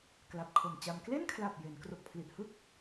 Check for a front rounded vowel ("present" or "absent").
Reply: absent